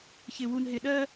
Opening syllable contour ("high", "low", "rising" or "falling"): low